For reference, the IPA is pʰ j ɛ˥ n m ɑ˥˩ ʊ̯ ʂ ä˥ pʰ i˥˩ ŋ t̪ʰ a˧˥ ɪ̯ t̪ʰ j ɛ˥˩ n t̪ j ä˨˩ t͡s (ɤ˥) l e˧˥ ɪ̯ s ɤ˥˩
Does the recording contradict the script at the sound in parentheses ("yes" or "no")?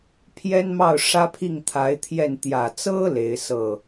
no